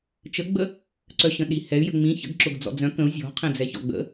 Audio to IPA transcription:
t͡ʃ ə ɡ͡b ə | ǀ œ ɕ ə̃ ɗ i h ɛ y̯ j ə̤ ŋ͡m ĩ ç ə̰ ɡ ǁ ʊ ɡ d͡z ɔ̰ d͡z œ̃ k ə̃ u̯ zʲ ɔ̤ qʰ ɛ̃ d͡z ɛ ç ɔ̰ ɡ͡b ə̰

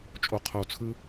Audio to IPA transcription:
t͡ʃʼ o˧ qʰ o˧ t͡sʰ ɯ˦

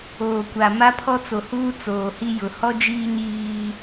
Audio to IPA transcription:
oː˨ kʷ a˨ m a˦ pʰ ɔ˦ t͡s o˨ h uː˦ t͡s oː˨ h i˦ j ʊ˨ h ɔ˦ d͡ʒ iː˦ ɲ iː˦

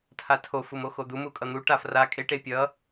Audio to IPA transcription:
tʰ a tʰ o f u m o x o d̪ u m u kʼ ʌ n̪ u ʈ a f r a kʼ e ʈ e pʲ ʌ

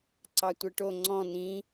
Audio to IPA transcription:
ǀ ɑ tʷ ɛ ʈ o ŋ͡ǀ ɔ̃ n ĩ

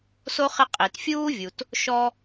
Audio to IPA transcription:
s o˥ χ ɪ˦ qʼ i˩ t fʲ uː˥ vʲ u˩ t | ʃ ɔ˦

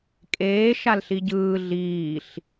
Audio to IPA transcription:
kʼ eː ʃ a l ɬ i ɟ ɯː ɮ iː ɬ

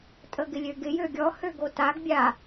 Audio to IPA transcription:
tʼ ə ɡ ɪ lʲ ø ɡ ɪ j ø ɡʲ ɔ h ø ɡ o t a ɡ bʲ a

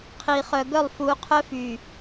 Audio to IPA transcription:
qʰ i˨ χ œ˨ ɡ œ˦˨ lˠ f u˨˦ qʰ œ˦ f y˨

